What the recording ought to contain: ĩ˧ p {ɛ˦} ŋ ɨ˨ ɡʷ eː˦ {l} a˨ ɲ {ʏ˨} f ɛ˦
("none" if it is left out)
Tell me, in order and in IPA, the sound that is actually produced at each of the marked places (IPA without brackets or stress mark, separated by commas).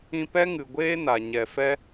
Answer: ɛ˦, n, ɛ˨